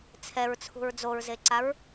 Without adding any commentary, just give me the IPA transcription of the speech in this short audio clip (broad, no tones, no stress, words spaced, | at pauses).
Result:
t͡sʰɛɹt͡sʰṳɹ d͡zoɹzeǀaɹ